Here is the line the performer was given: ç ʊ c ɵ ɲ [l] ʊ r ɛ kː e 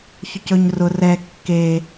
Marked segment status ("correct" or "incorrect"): incorrect